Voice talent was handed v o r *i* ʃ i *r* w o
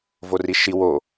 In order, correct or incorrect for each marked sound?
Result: correct, incorrect

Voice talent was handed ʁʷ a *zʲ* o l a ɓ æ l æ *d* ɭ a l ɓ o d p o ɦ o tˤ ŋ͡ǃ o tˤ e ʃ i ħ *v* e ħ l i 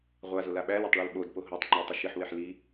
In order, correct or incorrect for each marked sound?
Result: incorrect, incorrect, incorrect

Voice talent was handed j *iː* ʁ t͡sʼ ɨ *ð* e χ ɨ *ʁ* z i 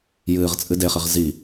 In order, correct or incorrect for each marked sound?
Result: incorrect, incorrect, correct

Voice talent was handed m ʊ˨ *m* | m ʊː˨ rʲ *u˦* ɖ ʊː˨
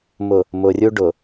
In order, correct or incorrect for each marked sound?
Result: incorrect, correct

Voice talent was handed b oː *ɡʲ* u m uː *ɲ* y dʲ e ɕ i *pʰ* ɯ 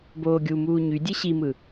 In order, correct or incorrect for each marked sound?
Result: correct, correct, incorrect

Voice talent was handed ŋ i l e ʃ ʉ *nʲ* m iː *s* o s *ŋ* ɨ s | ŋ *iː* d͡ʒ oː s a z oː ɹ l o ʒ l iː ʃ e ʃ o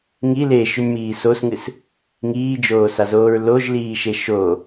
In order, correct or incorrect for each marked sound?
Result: correct, correct, correct, correct

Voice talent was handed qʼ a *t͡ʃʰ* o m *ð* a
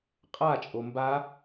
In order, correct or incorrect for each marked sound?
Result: incorrect, incorrect

